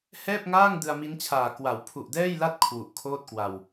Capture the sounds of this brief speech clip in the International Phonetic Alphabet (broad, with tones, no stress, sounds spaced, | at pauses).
h ɛː˥˩ p̚ ŋ aː˥˩ ŋ d ɯ˧ a̯ m i˦˥ n t͡ɕʰ aː˨˩ k w a˩˦ w pʰ u˨˩ ʔ d ɛː˥˩ j l a˥˩ t̚ kʰ w u˨˩ ʔ kʰ oː˥˩ t̚ k w a˧ w